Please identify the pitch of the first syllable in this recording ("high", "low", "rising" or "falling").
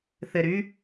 low